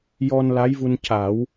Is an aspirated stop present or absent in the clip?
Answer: absent